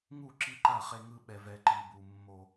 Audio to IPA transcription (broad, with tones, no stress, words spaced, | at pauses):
ŋu˦˨ǁi˦ǃa˦˨ χe˦ŋɯ˦ ɓɛ˦vɛ˦ ǃi˦bu˦ mːo˦